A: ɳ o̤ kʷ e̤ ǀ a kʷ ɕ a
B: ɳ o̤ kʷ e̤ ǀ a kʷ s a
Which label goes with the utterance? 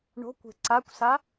B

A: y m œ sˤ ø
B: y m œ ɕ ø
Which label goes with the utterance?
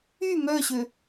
B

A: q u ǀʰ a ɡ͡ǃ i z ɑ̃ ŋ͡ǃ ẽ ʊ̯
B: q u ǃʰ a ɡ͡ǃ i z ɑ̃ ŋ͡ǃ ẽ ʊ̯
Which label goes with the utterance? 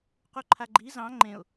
B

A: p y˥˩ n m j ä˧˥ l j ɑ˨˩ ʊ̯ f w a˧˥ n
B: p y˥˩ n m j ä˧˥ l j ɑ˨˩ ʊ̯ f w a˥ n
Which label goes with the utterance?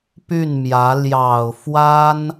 B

